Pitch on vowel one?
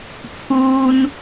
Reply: high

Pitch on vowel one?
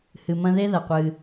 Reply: low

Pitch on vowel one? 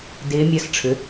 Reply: rising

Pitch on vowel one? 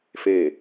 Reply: falling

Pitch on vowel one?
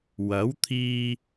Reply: rising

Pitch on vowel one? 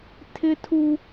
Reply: high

